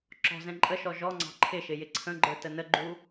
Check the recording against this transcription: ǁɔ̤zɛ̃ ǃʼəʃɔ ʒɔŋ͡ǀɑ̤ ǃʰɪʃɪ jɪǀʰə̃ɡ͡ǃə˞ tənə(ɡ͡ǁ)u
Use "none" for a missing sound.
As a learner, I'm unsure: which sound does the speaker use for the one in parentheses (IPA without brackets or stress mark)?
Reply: ɡ͡ǃ